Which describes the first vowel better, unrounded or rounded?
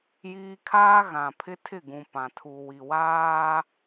unrounded